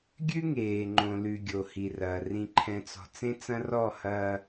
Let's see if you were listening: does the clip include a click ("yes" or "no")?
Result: yes